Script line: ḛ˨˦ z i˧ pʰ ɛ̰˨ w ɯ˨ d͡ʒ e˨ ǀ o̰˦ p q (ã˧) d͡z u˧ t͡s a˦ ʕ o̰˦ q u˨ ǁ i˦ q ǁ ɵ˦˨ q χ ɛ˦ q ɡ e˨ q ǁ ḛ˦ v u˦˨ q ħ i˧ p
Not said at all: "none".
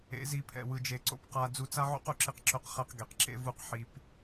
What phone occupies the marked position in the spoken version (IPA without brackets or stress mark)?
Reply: a˧